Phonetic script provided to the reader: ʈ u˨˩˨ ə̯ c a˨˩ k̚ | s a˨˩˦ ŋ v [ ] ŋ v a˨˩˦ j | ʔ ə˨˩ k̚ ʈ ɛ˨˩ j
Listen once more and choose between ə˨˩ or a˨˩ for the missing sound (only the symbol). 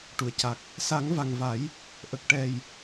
a˨˩